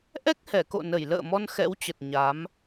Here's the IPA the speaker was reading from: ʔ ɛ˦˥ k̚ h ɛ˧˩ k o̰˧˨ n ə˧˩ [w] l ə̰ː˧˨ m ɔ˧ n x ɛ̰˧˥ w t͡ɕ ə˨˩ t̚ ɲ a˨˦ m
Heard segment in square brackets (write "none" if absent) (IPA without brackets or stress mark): j